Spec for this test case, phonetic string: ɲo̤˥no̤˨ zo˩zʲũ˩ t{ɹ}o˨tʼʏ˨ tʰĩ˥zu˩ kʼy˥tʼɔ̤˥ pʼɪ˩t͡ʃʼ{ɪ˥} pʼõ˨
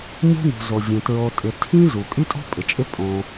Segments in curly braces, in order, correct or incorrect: correct, correct

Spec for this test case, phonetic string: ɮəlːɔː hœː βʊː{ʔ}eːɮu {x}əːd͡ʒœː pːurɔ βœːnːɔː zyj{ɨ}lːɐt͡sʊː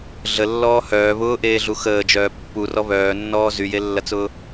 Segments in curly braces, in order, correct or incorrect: correct, correct, incorrect

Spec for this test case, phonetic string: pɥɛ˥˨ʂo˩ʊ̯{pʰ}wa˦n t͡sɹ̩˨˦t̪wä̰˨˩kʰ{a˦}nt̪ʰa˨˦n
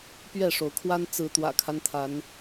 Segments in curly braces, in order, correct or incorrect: incorrect, correct

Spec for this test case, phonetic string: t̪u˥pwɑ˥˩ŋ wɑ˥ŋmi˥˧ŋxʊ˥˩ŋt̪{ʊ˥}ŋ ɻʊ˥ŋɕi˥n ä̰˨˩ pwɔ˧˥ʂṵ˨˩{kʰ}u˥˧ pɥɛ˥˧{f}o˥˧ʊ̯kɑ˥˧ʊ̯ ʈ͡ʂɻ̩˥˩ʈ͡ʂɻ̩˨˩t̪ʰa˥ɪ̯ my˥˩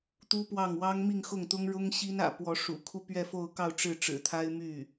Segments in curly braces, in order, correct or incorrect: correct, correct, correct

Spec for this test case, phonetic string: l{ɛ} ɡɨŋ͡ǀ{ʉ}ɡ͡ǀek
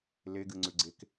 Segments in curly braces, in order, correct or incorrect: incorrect, correct

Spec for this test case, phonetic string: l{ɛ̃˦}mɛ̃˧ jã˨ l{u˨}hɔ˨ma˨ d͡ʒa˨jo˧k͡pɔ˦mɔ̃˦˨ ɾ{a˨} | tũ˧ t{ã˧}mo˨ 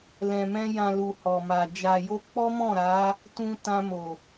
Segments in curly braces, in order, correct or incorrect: incorrect, correct, incorrect, correct

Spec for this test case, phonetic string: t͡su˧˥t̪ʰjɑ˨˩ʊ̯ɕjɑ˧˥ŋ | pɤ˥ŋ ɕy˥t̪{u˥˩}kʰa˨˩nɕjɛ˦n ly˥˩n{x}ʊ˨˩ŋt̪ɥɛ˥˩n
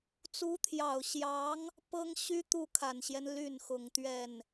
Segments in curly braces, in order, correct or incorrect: correct, correct

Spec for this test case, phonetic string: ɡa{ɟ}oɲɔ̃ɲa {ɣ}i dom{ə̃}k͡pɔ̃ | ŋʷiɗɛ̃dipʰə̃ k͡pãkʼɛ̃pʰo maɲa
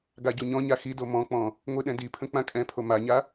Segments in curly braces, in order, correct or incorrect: correct, incorrect, incorrect

